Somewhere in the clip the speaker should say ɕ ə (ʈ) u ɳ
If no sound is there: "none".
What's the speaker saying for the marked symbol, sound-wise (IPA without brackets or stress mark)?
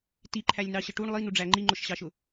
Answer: ʈ